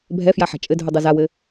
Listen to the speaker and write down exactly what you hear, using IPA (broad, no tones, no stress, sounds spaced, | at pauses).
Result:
bʱ ɛ f j a ħ a̤ t͡ʃʼ ɘ dʱ u dˤ u z a w ɘ